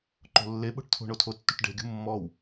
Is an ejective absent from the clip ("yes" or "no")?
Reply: yes